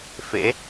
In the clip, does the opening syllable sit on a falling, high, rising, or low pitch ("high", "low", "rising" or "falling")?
rising